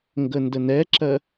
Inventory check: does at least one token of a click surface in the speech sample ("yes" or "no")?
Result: yes